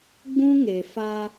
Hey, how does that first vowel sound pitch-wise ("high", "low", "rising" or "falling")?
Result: high